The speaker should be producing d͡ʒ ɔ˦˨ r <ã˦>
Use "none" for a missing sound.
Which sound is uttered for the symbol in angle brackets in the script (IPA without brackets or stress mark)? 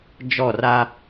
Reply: a˦